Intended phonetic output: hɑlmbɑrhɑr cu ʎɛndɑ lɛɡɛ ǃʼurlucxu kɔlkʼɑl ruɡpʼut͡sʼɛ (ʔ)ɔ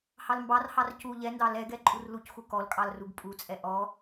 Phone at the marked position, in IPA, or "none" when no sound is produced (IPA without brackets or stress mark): ʔ